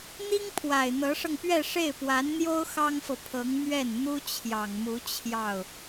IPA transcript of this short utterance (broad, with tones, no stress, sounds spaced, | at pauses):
n̪ i˥ ŋ pʰ w a˨˩ ɪ̯ n̪ ɤ˧˥ ʂ ɤ˧ ŋ p ɥ ɛ˥˧ ʂ e˥˩ ɪ̯ p w a˧˥ n n̪ j o˥ ʊ̯ x ɑ˥ ŋ f ɤ˨ pʰ ɤ˧˥ ŋ m ɥ ɛ˥˩ n n̪ u˥ t͡ɕʰ j ɑ˨˩ ŋ m u˧˥ t͡ɕʰ j ɑ˥˩ ʊ̯